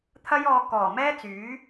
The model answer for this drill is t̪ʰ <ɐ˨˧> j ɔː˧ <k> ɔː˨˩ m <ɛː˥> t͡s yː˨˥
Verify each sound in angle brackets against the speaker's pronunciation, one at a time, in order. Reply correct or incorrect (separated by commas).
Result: incorrect, correct, correct